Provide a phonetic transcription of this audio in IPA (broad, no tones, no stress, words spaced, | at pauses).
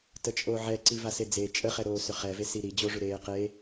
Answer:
tət͡ʃʼoʕɛǀi vased͡ze t͡ʃʼəχɛɾoː sʏχɛvesi ɾi d͡ʑoʐʏɾeː qe